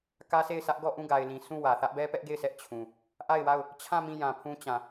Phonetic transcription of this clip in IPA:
k ä˦ sʰ e˦˨ ɪ̯ s ä˦ ʔ ɡ ɔ˦˨ ʔ ũ˦˨ ɡ a˨ ɪ̯ l ĩ˨ sʰ ũ˦˨ w ä˨ θ ä˦ ʔ b ɛ˦ p ɛ˦ ʔ ɡ e˦˨ ɪ̯ sʰ ɛ˦ ʔ t͡ɕʰ ũ˨ | ʔ a˦˨ ɪ̯ w a˦˨ ʊ̯ | t͡ɕʰ ã˦˨ m ĩ˦˨ j ã˨ pʰ ũ˦ t͡ɕ ã˨

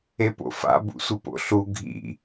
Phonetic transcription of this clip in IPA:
e p o̰ f a̰ b ṵ sʷ ɯ p o̰ ɬ u ɡʱ ḭ

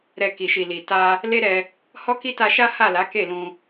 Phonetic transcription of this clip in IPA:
ɾ ɛ˨ k i˨ ʃ i˨ l i˨ t a˧ | l e˦ ɾ ɛ˧ | h ɔ˦ k i˦ t a˧ ʃ a˦ h a˦˨ l a˨˦ k e˦˨ l ũ˧

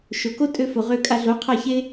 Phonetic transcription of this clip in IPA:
ʃ o˩ k o˥ tʼ ø˧ f o˩ ʁ ø˧ kʼ a˧ ɮ o˩˥ qʰ a˥˩ ç e˥

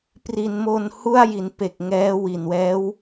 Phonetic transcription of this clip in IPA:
p r i˩˦ n m o˧ n h u˥˩ a̯ j i˩˦ n p e˨˩ k̚ ŋ ɛː˦˥ w i˨˩ n w ɛː˦˥ w

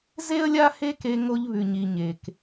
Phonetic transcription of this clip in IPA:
z e˦ ə̯ lʲ a˦ h e˦ k e˧ ŋ o˧ ʎ β ʉ˨ ɲ i˨ ɲ e˨ k

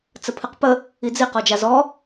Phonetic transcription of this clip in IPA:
t͡s ə pʰ ɨ q p ə | i d͡z i q ɔ d͡ʒ a z ɔ

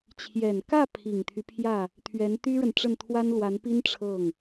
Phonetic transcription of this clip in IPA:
t͡ɕʰ j ɛ˨˩ n k ä˥˩ pʰ i˨˩ ŋ t̪ʰ y˦ pʰ j ä˥˩ | t̪ʰ ɥ ɛ˧˥ n t̪ y˥ ɻ ə˨ n ʈ͡ʂ ə˥˩ n t̪ʰ w a˥ n l w a˧˥ n p i˥ n ʈ͡ʂʰ ɤ˥˩ ŋ

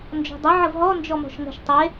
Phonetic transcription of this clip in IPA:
n d͡ʒ ɔ̤ dˤ ə ʕ ə v ɦ ɔ n d͡ʒ ɔ m ɔ̤ ʃ ŋ ə̤ ʃ tˤ e

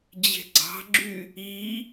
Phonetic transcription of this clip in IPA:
d͡ʑ e̤ ɡ͡ǀ ɑ̤ ɡ͡ǁ y | i

